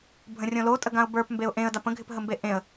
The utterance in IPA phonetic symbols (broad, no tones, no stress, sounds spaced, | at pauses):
bʱ ə̃ rʲ õ l o tʼ ə ɡ ã ʊ̯ b ə˞ p m b e ʊ̯ ʔ ẽ ə̯ d a p ə̃ ɡʱ ɪ p ɦ ə m b e ʔ ẽ ə̯